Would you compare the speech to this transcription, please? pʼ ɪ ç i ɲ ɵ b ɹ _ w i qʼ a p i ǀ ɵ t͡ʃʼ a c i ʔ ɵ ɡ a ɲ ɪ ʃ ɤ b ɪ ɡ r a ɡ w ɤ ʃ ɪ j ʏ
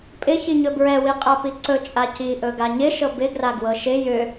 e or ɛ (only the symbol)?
ɛ